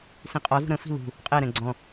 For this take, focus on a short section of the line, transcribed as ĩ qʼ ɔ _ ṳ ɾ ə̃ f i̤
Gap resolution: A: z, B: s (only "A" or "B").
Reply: A